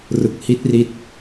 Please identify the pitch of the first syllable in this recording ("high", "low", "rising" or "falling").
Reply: low